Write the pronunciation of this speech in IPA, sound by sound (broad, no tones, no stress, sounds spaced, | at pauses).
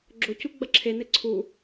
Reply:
ɡ͡ǁ o c u ɡ͡b ɐ ǁʰ e n e ǀʰ u